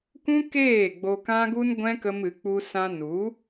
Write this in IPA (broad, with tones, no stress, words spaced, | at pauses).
kũ˦keː˦˨ ɡ͡bo˧kã˦ɡu˦nɡʷɛ̃˦ kə˦mɨ˨˦k͡pu˦ sã˧nu˨˦